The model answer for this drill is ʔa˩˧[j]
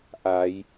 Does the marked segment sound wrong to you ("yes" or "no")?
no